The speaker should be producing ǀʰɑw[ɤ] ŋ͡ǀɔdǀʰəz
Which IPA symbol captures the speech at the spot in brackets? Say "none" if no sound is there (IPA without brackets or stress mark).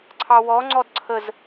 ɔ